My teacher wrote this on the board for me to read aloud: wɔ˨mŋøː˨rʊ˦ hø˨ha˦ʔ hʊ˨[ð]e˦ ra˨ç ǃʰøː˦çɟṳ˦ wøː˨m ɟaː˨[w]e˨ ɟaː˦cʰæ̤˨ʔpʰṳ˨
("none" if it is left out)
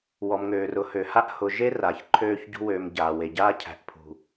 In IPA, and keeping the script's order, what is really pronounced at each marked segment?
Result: ʒ, w

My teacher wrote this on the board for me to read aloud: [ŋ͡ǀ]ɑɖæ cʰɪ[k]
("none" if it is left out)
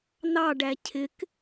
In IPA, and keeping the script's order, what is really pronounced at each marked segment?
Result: n, k

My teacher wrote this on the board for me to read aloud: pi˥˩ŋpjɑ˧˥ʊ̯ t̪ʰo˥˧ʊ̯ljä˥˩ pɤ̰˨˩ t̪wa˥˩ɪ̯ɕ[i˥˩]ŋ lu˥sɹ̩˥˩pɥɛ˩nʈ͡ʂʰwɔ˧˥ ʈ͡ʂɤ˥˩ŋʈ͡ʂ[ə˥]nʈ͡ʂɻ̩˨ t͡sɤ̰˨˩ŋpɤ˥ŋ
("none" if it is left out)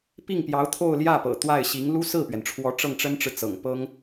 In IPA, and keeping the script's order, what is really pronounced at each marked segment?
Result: i˧˥, ə˥

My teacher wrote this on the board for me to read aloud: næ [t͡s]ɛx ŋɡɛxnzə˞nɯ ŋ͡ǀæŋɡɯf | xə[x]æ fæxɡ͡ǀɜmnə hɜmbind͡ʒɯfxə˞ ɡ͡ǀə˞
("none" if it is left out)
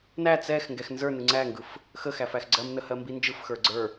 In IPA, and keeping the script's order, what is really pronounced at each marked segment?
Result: t͡s, x

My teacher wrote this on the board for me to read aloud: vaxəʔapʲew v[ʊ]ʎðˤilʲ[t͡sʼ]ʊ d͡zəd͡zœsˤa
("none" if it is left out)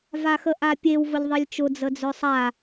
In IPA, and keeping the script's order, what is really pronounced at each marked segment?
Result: ʊ, t͡ʃ

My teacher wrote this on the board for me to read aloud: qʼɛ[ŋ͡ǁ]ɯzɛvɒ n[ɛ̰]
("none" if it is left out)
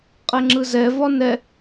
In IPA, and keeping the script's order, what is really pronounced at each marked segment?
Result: ŋ͡ǁ, ɛ

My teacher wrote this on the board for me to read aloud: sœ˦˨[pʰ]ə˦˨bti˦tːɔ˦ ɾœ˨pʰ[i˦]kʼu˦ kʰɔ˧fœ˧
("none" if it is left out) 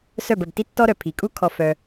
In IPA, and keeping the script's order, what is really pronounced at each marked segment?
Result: b, i˨

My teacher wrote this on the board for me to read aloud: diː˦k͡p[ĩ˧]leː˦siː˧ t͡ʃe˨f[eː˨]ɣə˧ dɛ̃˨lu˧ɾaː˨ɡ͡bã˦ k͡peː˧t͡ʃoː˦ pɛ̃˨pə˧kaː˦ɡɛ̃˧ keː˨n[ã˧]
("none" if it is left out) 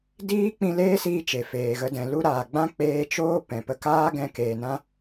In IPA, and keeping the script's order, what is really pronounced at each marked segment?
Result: ĩ˧, eː˨, ã˧

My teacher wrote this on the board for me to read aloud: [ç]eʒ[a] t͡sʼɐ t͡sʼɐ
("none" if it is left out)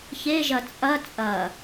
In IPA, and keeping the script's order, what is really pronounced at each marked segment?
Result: ç, ɐ

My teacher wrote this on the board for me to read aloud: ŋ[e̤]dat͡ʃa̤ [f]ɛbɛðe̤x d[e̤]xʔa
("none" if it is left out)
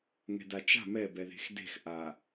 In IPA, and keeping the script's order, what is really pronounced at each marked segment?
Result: ɛ̤, m, e̤

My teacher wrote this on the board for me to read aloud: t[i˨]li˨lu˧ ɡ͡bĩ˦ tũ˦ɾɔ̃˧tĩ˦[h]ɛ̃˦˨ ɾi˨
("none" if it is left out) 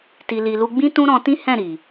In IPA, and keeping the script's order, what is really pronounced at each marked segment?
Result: i˨, h

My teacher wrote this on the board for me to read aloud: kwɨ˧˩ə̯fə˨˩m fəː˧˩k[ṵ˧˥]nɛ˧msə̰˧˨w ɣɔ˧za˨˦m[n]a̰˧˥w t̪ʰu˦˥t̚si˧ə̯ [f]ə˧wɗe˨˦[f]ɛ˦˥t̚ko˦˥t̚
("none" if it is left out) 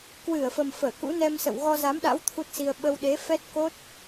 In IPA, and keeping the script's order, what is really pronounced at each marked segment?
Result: ṵ˧˥, ɗ, ɓ, f

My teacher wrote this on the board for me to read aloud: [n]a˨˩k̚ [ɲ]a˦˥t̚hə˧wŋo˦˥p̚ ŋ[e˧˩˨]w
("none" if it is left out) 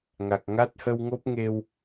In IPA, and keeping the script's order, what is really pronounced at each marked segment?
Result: ŋ, ŋ, e˧

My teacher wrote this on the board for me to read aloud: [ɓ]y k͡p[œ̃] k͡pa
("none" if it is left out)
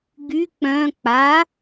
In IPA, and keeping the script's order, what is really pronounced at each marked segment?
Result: ɡ, œ̃

